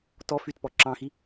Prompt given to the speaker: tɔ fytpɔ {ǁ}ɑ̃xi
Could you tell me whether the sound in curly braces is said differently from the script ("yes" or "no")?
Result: no